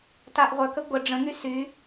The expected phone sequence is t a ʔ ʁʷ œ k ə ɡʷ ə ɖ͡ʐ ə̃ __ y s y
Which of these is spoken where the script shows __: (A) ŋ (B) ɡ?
A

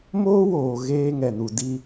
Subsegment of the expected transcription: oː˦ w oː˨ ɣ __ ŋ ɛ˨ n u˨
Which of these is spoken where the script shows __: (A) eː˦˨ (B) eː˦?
B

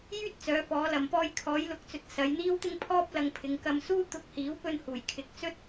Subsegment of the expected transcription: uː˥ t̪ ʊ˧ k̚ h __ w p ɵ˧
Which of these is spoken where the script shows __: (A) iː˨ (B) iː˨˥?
B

